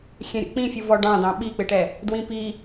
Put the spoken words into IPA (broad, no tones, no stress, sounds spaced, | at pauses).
xʲ ɛ̃ ɾʲ o̰ k͡p ĩ fʲ u v ɔ ɖ ɑ̃ d ɑ̃ ɓ i k͡p ɪ ʈ ɛ | d w ĩ p i